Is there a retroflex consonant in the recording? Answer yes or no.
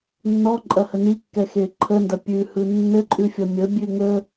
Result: no